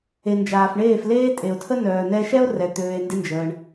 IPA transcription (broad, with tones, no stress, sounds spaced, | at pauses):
e˨ n d͡ʒ aː˨ f ɳ eː˦˨ f l eː˦ tʼ e˨ o̯ tʰ ə˦ n œː˨ n ɛ˧ ʃ ɛ˦ o̯ r ɛ˨ t̪ øː˧ e̯ n d ɪ˦ n d͡ʒ əː˧ ɳ